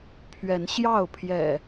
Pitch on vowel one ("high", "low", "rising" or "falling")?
rising